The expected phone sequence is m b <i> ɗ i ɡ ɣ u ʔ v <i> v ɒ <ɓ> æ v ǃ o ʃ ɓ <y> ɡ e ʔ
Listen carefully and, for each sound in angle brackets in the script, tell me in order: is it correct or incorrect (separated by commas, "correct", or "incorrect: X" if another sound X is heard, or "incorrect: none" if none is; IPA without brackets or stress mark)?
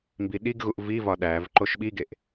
correct, correct, incorrect: ɗ, incorrect: i